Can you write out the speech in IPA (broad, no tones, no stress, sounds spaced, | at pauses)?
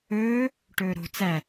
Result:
ɵː | ʈ ɵː ɾ o̤ t͡s æ